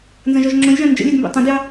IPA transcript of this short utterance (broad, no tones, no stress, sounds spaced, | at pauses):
n z ɐ̃ ʒ ɔ ʒ ŋ͡ǁ õ lʲ ʒ ɑ̃ n d͡ʒ ə̰ lʲ ɛ d m b ḛ tˤ ɐ̃ d j ɑ